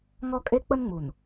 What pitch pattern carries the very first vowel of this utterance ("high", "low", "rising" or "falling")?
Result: high